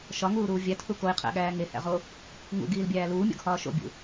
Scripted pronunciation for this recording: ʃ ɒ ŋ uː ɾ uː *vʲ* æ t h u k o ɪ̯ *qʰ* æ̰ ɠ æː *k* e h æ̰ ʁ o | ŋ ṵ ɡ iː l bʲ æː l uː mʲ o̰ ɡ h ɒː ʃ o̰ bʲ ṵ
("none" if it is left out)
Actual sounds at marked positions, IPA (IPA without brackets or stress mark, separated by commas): vʲ, qʰ, ŋ